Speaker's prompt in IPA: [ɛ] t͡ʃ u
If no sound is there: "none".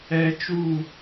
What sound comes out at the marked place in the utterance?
ɛ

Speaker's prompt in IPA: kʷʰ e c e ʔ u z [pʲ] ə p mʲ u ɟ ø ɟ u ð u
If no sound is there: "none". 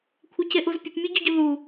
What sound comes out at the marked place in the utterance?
pʲ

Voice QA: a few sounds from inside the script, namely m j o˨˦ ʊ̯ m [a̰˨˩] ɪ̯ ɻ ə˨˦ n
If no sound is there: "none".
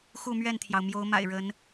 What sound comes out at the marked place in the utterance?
a̰˨˩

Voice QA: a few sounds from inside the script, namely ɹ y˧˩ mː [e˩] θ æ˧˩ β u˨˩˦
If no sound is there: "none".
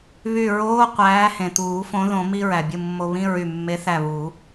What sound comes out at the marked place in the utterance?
e˨˥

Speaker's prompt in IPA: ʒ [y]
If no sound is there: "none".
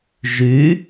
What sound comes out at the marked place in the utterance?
y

